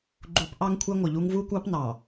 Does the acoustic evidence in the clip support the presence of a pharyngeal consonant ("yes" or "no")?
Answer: no